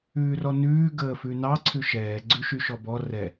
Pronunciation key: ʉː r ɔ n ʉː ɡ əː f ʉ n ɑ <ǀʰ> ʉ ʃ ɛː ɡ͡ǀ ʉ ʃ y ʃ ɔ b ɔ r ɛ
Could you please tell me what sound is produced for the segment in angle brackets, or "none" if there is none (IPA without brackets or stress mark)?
ǀʰ